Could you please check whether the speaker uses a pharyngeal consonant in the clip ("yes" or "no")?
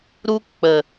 no